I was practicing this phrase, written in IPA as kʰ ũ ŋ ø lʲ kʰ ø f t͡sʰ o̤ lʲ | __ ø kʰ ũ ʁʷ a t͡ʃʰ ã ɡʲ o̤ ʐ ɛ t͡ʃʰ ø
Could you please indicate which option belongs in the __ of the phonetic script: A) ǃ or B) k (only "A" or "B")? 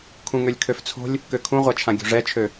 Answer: B